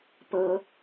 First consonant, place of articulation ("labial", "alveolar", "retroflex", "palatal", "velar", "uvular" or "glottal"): labial